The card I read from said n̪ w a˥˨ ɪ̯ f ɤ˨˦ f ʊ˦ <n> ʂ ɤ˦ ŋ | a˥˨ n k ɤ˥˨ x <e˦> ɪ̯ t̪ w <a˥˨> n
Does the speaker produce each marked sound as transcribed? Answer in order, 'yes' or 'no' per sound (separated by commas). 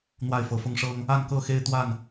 no, yes, yes